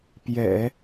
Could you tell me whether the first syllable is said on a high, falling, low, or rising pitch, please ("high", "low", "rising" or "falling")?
low